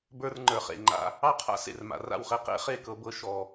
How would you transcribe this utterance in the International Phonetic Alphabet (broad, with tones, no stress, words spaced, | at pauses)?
bə˞˦rŋ͡ǃə˞˨χḛ˨ŋ͡ǃa̰˦ | ɑ˦qʰa̰˦ sḛ˨rma̰˨ra̰˦˨wχe˧ qḛ˦χe˦˨ kɤ˧bɤ˧ ʃɔ˨